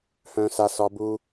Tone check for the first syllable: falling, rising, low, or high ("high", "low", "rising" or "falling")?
high